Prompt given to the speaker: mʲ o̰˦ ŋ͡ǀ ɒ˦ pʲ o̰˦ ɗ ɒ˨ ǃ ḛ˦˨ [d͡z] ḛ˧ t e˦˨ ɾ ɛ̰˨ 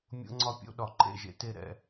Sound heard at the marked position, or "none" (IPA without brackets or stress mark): ʒ